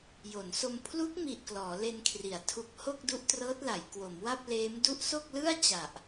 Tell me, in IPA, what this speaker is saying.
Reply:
j o˩˦ n s o˧ m pʰ l u˦˥ k̚ m i˨˩ ʔ k l ɔː˩˦ l e˧ n kʰ r i˩˦ a̯ tʰ u˨˩ k̚ h o˥˩ k̚ d u˦˥ ʔ t r ɤː˦˥ t̚ l a˩˦ j k w o˩˦ m w a˥˩ p̚ l eː˦˥ m d u˦˥ ʔ s o˥˩ k̚ l ɯ˥˩ a̯ t͡ɕ a˨˩ ʔ

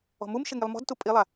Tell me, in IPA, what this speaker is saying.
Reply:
ɔ̤ m u m ʃ ɪ ŋ i lˠ m ɔ̤ d t u pʼ i lˠ a

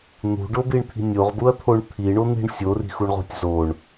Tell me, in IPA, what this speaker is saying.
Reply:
n̪ ṳ ɖ o b i ɳ t̪ʰ i̤ nʲ o ʁ b u ɐ̯ t̪ʰ o ɳ t̪ʰ i ɳ o n̪ i̤ ɳ sʲ o r i̤ x u ɳ ʁ o̤ tʲ z o ɳ

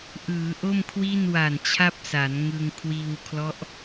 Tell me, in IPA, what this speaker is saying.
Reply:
ʔ ɯː˩˦ ʔ o˥˩ m kʰ w i˥˩ n w a˨˩ n t͡ɕʰ a˥˩ p̚ s a˩˦ n ŋ ɯ˧ ŋ kʰ w iː˧ w kʰ l ɔ˦˥ ʔ

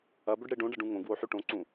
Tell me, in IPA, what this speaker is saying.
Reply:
ɐ b ɵ ɖ ɽ e ɖ õ ɖ ɐ ɖ ũ ŋ õ ɡ w o ħ ʉ ʈ õ ǀ ũ

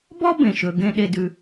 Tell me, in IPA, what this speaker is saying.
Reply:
b ɔ˥ b ẽ˩ ʃ ɵ˩ ɡ ẽ˧ ɗ e˧ d ʉ˩

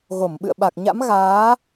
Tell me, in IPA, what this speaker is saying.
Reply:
ɣ o˧˩ m ɓ ɨ̰˧˨ ə̯ ɓ a˨˩ k̚ ɲ a̰˧˥ m ɣ aː˨˦

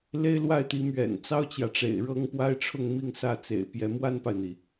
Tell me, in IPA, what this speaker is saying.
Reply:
l e˥ ɪ̯ l w a˥˩ ɪ̯ t̪ i˧˥ m ɥ ɛ̰˨˩ n t͡s ɑ˥ ʊ̯ t͡ɕ j ä˨ ʈ͡ʂ ḛ˨˩ ɪ̯ ɻ ɤ˥ ŋ p w a˥ ɪ̯ ʈ͡ʂʰ ʊ˥˧ ŋ m i˥˧ ŋ s ä˥˩ t͡s ḛ˨˩ ɪ̯ p j ɛ˧˥ m w a˥ n p a˨ ɪ̯ n̪ i˩

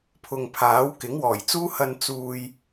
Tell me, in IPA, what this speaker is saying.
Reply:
pʰ ʊ˨ ŋ pʰ aː˨˥ w k ɪ˨˥ ŋ w ɔː˨˩ j t͡s uː˥ h ɐ˧ n t͡s uː˨ j

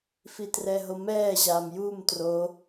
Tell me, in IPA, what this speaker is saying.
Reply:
f i t r ɛ ɦ o m ɛː ʑ aː m j u m t r o

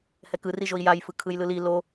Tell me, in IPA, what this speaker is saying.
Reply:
h ɛ k ɯ r i ʒ o i̯ j a j f ɯ kʰ ɯ j l ɯ l i l o

